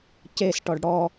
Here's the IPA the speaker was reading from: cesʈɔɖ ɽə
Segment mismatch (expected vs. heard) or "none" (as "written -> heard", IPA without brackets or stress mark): ə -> ɔ